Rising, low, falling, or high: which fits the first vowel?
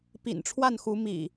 low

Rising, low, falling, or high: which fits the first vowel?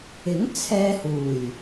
rising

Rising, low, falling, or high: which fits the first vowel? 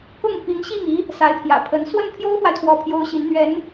falling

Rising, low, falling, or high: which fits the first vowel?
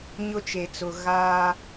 high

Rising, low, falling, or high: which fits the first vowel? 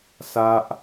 high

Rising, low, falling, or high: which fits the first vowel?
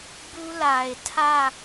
high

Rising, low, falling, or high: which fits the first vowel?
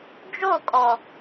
falling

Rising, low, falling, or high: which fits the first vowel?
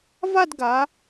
falling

